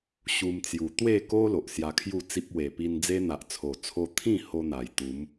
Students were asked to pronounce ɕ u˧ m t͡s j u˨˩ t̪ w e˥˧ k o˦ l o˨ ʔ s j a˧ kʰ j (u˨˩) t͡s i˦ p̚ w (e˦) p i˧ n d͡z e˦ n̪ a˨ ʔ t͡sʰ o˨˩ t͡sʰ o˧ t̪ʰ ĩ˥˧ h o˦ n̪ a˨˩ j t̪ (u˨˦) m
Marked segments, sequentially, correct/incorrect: incorrect, incorrect, correct

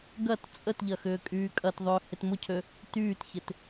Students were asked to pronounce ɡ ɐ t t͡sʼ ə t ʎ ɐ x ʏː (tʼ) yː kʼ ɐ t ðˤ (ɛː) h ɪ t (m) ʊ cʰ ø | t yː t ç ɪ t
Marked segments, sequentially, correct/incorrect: incorrect, incorrect, correct

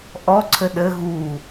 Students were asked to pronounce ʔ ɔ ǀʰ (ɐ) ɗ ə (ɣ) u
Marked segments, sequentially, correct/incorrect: incorrect, correct

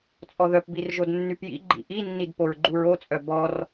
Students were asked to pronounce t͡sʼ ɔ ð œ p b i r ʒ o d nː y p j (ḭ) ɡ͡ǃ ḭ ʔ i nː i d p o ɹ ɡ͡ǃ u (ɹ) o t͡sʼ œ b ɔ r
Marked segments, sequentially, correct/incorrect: correct, correct

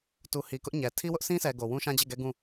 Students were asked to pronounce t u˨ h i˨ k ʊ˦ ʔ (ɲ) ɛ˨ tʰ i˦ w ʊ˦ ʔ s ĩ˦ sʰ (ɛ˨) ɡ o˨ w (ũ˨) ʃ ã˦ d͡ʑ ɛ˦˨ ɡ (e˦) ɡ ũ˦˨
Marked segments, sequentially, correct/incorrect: correct, correct, incorrect, incorrect

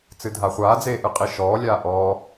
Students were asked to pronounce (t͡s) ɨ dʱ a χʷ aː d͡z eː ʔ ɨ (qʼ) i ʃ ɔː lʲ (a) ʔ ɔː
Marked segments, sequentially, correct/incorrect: correct, correct, incorrect

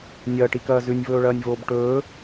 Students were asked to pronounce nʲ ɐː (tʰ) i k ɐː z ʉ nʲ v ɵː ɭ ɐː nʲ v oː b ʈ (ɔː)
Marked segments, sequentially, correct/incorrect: incorrect, incorrect

